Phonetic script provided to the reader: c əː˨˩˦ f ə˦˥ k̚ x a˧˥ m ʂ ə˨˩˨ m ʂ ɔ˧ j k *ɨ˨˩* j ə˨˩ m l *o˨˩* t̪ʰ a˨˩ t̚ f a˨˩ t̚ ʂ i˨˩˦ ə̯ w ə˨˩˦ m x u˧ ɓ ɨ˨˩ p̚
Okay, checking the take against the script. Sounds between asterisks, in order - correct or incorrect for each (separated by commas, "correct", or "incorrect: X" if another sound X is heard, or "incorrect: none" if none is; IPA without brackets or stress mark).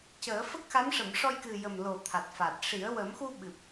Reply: correct, correct